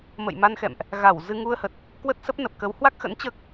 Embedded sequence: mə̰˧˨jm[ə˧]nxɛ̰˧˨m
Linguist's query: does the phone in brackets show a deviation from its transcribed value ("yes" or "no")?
yes